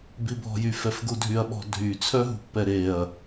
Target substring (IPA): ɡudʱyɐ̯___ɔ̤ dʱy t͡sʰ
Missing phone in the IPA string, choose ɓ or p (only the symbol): ɓ